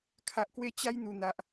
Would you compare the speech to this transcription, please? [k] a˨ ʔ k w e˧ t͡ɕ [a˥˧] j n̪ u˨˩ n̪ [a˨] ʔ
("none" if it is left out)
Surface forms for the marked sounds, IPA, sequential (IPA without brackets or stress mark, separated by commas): kʰ, a˦, a˨